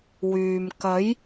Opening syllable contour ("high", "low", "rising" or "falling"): low